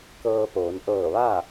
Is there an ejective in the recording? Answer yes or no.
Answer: no